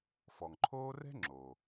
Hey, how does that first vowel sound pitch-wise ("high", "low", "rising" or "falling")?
low